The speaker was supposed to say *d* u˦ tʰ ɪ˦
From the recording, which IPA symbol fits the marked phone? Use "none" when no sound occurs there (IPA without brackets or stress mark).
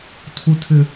tʰ